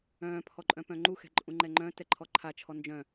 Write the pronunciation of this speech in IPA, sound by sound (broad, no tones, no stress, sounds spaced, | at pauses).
œ̃ː pʰ ɔ ǃʼ œ̃ p œ̃ ŋ͡ǃ u x ɛ̤ ǃʼ ũ ŋ͡ǃ ɛ ŋ͡ǃ œ̃ t ɛ ǃʰ ɔ ǃʰ a t͡ʃʰ ɔ n d͡ʒ œ̃